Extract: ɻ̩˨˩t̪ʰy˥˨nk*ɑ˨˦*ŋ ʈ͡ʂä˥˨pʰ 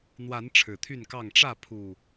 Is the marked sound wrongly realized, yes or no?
yes